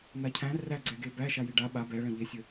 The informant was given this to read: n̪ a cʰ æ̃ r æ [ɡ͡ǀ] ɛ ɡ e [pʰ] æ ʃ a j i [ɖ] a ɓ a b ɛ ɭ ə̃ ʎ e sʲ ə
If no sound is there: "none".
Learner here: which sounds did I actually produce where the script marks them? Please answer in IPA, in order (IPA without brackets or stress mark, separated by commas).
ɡ͡ǀ, b, ɖ